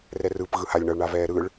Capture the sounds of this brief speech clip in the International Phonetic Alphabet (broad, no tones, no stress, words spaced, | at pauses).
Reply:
rɛrɯp ɣɯhalʲɳʌːɭɳa vɛːɾɯɭ